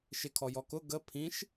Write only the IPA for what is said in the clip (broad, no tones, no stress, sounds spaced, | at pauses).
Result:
ʃ ɪ kʰ ɔ j ɔ k ʊ ɡ ə pʰ ĩ ʃ